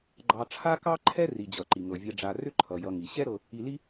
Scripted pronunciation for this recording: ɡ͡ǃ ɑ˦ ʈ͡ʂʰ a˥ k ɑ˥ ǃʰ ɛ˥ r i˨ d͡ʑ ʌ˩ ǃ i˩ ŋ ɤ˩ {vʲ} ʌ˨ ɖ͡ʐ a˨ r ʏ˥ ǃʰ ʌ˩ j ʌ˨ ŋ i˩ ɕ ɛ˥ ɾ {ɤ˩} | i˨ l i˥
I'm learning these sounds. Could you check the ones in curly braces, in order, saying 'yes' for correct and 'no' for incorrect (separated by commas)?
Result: yes, no